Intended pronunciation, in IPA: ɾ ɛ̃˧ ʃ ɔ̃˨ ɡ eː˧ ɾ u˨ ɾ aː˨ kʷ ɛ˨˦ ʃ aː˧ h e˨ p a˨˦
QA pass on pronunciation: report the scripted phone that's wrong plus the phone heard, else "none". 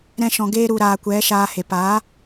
none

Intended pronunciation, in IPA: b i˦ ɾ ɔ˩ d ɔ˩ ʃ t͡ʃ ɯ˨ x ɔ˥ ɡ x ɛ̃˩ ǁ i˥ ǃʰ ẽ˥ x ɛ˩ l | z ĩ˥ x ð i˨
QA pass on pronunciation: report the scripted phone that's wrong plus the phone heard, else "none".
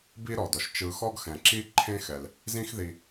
none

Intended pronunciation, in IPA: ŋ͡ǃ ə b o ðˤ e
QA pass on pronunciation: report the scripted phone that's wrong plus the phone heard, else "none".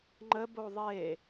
none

